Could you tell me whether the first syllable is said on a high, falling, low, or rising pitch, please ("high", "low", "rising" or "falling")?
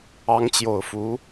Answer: rising